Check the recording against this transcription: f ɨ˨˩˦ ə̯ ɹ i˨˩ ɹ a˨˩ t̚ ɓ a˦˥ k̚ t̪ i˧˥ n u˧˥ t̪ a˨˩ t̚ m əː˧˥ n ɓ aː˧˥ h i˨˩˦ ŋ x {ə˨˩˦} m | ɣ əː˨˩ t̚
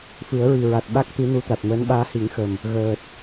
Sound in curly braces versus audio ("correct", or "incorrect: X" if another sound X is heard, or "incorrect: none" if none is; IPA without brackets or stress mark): incorrect: ə˨˩